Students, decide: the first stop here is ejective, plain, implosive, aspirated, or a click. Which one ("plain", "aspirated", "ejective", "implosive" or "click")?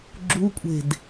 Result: click